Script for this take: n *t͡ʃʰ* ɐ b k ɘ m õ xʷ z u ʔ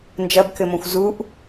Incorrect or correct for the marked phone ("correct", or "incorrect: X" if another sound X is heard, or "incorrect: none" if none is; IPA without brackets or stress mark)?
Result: incorrect: d͡ʒ